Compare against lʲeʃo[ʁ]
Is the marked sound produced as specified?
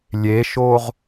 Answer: yes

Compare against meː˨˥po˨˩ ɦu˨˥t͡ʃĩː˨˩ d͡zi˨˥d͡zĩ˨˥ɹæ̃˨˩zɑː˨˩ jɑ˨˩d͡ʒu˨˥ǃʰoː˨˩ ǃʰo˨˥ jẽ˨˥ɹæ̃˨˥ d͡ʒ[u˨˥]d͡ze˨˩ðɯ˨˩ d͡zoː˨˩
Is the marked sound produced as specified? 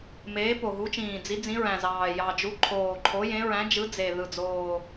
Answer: no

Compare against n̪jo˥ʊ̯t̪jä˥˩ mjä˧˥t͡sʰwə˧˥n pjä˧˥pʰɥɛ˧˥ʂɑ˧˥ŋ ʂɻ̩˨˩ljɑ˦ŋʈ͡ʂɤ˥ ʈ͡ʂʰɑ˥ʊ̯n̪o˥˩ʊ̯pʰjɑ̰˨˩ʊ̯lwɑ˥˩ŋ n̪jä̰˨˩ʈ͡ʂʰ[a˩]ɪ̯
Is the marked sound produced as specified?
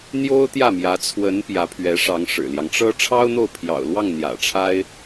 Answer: no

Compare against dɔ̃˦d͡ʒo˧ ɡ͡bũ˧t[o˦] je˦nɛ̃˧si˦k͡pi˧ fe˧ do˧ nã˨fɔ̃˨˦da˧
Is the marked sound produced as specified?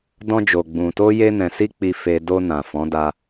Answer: yes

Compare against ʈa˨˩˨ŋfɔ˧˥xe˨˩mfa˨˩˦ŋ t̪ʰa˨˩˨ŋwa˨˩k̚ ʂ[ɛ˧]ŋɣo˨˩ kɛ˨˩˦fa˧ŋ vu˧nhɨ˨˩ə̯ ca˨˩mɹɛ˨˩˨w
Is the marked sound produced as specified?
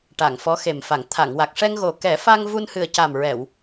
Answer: yes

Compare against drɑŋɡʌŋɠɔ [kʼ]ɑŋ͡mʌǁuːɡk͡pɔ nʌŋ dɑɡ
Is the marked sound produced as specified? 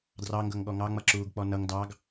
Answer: no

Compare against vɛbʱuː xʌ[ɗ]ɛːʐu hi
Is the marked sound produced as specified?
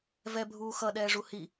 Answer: yes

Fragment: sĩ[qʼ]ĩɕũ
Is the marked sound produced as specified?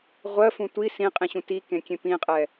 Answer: yes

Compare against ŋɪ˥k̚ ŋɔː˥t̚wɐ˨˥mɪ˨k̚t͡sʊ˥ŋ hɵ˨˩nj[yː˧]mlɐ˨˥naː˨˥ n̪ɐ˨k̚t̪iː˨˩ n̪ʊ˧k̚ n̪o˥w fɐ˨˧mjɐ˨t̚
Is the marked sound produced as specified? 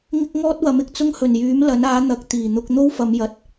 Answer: no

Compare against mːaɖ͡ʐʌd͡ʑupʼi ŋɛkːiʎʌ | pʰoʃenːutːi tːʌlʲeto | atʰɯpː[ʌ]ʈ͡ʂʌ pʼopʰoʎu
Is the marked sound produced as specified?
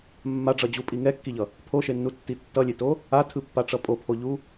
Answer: no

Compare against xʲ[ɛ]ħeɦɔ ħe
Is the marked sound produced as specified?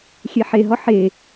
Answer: yes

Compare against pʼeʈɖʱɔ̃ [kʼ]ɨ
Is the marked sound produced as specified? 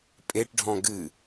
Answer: no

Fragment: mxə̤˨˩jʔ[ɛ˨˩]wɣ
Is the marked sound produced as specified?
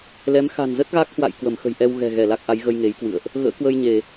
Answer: no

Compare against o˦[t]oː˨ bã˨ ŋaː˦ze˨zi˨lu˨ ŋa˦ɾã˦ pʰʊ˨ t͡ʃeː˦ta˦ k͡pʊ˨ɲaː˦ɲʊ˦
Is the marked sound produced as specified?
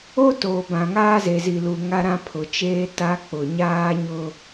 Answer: yes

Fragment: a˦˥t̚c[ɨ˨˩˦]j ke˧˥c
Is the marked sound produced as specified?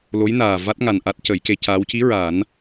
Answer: no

